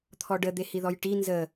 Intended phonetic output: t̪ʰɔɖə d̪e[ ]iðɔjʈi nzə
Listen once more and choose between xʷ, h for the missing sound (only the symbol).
h